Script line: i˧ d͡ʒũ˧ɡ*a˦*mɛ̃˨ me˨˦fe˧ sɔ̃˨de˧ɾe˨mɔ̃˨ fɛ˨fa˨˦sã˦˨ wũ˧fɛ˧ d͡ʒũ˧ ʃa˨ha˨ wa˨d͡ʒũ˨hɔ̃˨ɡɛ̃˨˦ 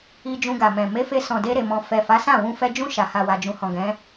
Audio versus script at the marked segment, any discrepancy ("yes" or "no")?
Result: yes